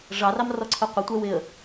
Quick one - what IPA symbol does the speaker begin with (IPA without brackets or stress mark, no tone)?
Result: ʐ